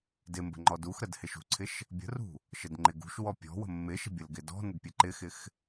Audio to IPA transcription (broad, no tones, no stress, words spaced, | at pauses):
dɪmbə̤ ŋ͡ǃɔduxɾəd hɪʃṳǀʰɪʃ | bʲə̤rṳ | ʃədŋ͡ǃɪɡṳʃwɔ pʲɔ̤ wə̤mːɪʃə̤ bʲəlɡɪdɔ̤nəd pʲəǃɪxɪx